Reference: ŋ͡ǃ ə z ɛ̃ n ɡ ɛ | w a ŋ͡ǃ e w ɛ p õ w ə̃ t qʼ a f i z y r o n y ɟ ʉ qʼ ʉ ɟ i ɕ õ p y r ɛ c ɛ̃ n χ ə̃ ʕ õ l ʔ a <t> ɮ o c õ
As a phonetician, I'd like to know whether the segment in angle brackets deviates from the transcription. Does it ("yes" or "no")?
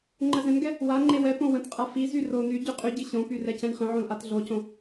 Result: no